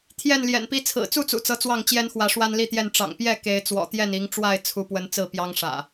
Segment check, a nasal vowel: absent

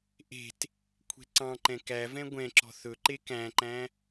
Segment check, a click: present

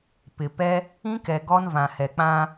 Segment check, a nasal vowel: present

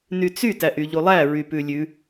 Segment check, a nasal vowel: absent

